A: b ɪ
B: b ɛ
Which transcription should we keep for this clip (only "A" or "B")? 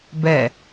B